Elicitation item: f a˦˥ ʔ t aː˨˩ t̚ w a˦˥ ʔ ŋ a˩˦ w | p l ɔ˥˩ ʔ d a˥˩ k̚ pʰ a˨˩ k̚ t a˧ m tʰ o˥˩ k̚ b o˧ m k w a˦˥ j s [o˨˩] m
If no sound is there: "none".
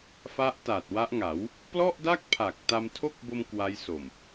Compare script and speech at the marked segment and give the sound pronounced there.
o˨˩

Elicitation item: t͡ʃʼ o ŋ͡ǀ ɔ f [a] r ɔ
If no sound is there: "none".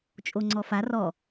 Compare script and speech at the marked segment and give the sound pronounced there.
a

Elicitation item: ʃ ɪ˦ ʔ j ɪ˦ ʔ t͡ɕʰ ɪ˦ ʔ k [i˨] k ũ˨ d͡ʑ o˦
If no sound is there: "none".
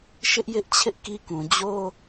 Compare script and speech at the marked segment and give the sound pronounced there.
i˦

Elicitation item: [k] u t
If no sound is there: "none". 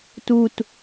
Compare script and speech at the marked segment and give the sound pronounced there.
t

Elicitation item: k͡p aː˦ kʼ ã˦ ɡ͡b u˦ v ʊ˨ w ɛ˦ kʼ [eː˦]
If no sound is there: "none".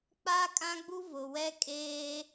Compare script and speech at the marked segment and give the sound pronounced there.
eː˦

